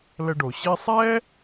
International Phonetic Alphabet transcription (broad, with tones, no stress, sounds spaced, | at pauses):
l ə˧ ɖ o˩ ɕ i˧ sˤ ɛː˥